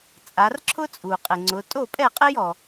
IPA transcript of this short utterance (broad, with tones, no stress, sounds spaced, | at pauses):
t͡sʼ a˩˧ r ǁʰ ʊ˥ t͡sʼ uː˩ qʼ e˩ ŋ͡ǀ ʊː˩˧ tʼ o˥˨ pʼ ɛ˥˨ qʼ e˥ j ɔ˩